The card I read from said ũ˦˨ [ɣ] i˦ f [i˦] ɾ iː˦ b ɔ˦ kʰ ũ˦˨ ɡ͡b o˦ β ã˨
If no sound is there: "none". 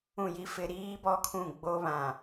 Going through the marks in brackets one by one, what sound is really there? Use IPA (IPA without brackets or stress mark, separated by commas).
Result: j, ɪ˦